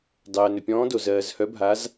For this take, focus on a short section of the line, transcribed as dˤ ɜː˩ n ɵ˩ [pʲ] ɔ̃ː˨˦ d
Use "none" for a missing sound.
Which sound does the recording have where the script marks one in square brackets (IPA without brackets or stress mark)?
pʲ